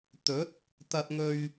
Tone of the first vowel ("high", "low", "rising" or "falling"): rising